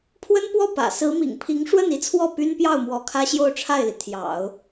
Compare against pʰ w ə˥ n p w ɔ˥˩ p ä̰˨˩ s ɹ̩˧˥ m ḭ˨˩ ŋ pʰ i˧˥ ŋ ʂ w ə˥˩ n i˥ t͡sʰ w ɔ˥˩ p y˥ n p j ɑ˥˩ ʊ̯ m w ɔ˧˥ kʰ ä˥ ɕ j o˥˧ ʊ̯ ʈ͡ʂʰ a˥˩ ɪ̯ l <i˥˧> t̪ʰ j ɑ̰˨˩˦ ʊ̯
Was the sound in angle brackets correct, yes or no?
no